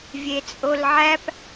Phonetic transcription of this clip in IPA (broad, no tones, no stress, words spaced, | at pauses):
vʲet͡sʼolʕæp